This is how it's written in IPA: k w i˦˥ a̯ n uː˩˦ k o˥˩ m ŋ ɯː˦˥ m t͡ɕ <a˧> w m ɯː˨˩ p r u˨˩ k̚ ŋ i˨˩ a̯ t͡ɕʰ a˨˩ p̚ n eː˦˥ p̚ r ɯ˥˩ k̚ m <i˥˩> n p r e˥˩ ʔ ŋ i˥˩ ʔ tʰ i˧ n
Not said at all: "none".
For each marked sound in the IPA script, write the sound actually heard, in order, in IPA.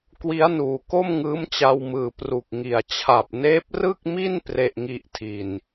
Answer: a˧, i˥˩

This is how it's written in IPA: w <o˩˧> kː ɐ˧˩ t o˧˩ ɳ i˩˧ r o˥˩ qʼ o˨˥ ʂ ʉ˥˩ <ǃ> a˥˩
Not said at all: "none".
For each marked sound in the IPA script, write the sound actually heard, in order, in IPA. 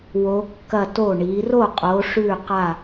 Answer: o˩˧, q

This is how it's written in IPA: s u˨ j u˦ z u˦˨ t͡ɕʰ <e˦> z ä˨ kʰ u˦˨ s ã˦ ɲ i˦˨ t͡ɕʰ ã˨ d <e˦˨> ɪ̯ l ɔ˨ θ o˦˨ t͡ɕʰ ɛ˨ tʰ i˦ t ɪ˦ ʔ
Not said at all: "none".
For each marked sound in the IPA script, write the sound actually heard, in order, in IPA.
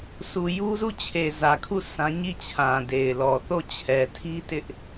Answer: e˨, e˨

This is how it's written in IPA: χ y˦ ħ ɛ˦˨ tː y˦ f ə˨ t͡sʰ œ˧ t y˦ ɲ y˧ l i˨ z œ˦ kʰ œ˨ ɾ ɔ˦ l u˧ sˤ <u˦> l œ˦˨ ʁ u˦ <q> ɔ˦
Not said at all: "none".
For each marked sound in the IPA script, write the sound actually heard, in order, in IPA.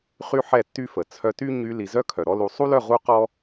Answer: u˦, q

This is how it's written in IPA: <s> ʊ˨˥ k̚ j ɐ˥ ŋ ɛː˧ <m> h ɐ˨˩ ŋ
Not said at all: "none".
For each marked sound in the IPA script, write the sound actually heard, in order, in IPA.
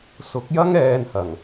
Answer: s, n

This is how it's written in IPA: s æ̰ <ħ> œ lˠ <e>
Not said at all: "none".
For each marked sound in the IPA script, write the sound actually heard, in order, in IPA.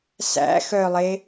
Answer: x, e

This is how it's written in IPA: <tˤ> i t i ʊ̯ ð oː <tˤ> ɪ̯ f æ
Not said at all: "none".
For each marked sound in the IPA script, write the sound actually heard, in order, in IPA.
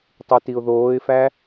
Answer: tˤ, none

